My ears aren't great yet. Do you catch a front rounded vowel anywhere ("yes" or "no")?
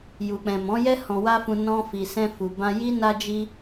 no